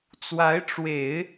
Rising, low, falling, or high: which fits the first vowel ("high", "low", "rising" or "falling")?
rising